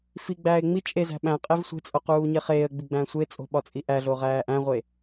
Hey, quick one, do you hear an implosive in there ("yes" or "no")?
yes